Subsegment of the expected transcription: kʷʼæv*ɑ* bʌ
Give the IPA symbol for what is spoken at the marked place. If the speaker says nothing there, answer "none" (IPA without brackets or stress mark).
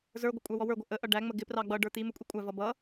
ʌ